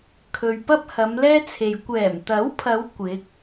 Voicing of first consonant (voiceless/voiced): voiceless